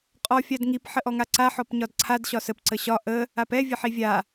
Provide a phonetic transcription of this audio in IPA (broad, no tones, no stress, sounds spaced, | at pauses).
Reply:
qʼ ɔ fʲ a d ŋ i p ħ ə ʔ ɔ ŋ a ǀ a ħ ɔ p ɲ ɒ d ǀʰ a d ɕ ɒ s ə p ǀ ə ɕ ɒ ʔ ə | a p ɛ vʲ ə ħ i vʲ a